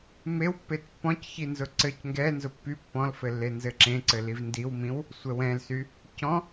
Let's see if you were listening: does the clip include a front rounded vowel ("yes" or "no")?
yes